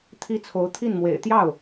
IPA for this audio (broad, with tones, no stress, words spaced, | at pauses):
t̪ʰi˥t͡sʰo˧˥ʊ̯ t̪ʰi˥˩nmwḛ˨˩ɪ̯ t̪jɑ˥˩ʊ̯